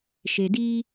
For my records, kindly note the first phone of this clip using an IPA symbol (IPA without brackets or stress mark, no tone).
ʃ